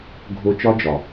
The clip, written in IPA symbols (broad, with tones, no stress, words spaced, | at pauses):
ɡʱo˦ t͡ʃɒ˦d͡ʒɒ˨